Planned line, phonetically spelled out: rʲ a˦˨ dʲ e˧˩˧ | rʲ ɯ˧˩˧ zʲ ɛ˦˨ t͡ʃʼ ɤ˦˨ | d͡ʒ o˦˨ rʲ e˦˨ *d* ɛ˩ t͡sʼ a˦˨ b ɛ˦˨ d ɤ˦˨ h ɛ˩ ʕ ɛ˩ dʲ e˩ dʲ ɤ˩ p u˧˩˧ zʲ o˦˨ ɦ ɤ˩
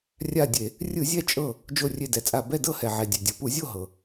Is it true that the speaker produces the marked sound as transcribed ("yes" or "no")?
yes